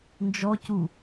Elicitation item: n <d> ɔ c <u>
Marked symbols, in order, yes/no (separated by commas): no, yes